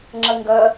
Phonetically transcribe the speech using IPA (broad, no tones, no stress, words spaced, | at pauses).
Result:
ŋ͡ǁɐŋɡɐ